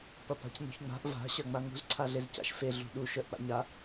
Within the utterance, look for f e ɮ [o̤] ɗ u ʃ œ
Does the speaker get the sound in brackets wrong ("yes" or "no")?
yes